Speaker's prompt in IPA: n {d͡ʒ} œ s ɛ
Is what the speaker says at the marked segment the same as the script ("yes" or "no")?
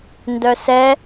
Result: no